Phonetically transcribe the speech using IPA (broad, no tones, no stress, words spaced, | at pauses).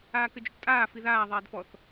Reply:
aːkɘd͡ʒoʈtʼaː fiðaː ðˤɛːdfɔθ